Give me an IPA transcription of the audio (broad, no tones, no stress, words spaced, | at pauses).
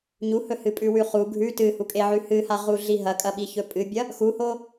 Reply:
ɲuhɵhɨ pʼʉwʉχu ɡʱʉ tɨhukʼeʕʉ hɨhaʁuɮi ɦɐkʼɐɓiçɵ pʼɨbʲɐ | xuho